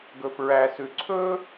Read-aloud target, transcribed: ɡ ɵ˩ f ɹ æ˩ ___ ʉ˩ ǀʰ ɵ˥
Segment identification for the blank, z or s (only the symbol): s